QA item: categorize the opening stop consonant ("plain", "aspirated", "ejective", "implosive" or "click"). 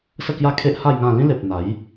plain